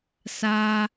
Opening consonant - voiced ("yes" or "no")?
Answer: no